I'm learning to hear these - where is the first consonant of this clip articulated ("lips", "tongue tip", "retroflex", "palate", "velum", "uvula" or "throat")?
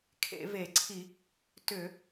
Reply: velum